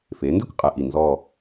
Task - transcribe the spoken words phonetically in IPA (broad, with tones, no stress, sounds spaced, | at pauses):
f e˩˧ n d e˥ kʷ qʼ ɛ˧ ʔ i˧˩ n z ɔ˥˧